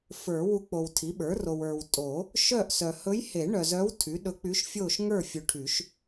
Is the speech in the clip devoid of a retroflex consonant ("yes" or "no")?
no